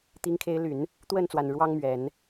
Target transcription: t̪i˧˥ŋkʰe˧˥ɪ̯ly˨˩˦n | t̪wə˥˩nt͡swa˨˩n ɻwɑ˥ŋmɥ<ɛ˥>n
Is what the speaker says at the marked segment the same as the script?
no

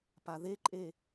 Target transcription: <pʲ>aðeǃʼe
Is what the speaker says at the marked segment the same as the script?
no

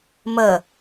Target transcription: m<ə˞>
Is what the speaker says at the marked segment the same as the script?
no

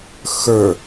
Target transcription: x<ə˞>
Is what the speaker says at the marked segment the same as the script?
yes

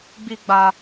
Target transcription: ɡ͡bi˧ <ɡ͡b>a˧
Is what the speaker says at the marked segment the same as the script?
yes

